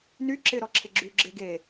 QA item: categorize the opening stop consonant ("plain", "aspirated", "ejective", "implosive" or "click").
click